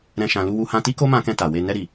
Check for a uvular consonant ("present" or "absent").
absent